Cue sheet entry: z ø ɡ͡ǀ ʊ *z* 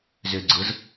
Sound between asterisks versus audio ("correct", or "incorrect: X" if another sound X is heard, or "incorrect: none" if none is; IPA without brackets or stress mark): correct